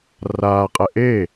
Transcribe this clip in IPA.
r aː qʼ ɛ ʔ e

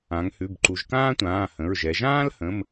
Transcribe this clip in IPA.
ã˩˧ ŋ h ʉ˩˧˩ b ǃ u˩˧ ʒ k ãː˥ tʷ ãː˩˧˩ h ə̃˩˧˩ ɹ ʒ ɛ˩˧ ʒ ãː˥ l h ə̃˩˧˩ m

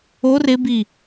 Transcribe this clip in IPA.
o r ɪ b i

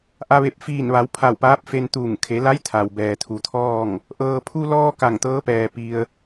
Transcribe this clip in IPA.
ʔ a˧ ʋ e˧˩ p̚ f iː˧˩ n ʋ a˩˧ w pʰ a˧˩ w p aː˧˥ p̚ f e˧ n t̪ uː˧˩ ŋ kʰ e˩˧ l a˧˥ j t̪ʰ a˩ w b ɛː˩ t̪ʰ u˩˧ t̪ʰ ɔː˥˨ ŋ | ʔ ɤː˩ pʰ u˧ l ɔː˧ k a˧˩ ŋ t̪ ɤː˧˥ p ɛː˩ p i˧ ə̯

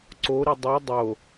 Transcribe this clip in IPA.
ǀ o ɾ i dˤ ɤ dˤ o

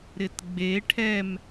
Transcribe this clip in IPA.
ɾ ɪ t ɡ͡b e ʈʰ ɛ m

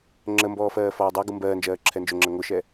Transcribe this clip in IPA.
ŋ͡ǁ ə m b ɔː f ɜː f ɔː dˤ ɜ ɡ u m b ɜː n d͡ʒ ɜː ǁʰ ɛ n d͡ʒ ʊ ŋ͡ǁ ɜ ŋ ʊ ʃ ɛ

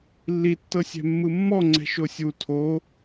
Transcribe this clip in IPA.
lː i tː ɤ sʲ ɛ̤ mː ɯ mː ɔ ŋ͡ǀ ɛ̤ ʃ o sʲ u tʰ o

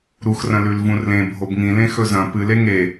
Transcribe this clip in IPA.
ɾ u x r ɐ̃ l ʉ l v ũ r l ẽ bʱ o b ŋ ĩ l ẽ x ɵ z ɐ̃ p ɨ l e ŋ e

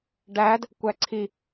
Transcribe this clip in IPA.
ɖ æ d | kʷ æ ǀʰ i

